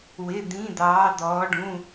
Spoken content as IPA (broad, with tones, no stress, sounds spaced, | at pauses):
w ɪ˧˥˧ d̪ ĩ˧˥˧ d̪ ɑː˧˥ d̪ ɔː˧˥ ɖ ũ˧˥˧